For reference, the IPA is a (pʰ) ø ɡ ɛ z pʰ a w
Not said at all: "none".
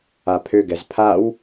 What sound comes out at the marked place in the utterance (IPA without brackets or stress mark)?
pʰ